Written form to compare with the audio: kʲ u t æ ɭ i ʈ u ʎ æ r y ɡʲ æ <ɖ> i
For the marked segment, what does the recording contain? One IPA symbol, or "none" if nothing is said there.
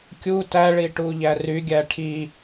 ʈʰ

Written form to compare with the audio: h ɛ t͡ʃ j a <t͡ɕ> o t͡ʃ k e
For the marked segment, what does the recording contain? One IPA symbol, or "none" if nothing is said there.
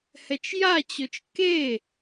t͡ɕ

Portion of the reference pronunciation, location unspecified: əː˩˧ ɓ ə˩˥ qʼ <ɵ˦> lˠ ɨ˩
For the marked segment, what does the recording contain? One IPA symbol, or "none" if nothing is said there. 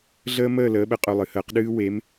ɵ˩˧˩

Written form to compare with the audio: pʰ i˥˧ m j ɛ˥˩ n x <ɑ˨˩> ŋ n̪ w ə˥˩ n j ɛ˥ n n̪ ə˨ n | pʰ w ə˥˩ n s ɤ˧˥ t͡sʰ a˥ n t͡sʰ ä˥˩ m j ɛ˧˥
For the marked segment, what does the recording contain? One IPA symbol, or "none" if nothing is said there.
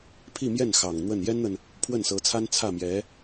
ɑ˨˩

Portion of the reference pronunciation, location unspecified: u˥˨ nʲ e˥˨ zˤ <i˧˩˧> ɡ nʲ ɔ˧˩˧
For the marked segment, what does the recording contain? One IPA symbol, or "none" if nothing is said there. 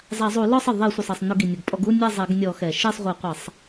e˧˩˧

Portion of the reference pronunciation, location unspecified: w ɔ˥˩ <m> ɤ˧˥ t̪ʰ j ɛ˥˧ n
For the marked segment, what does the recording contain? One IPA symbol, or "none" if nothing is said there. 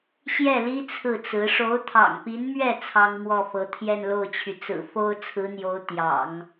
f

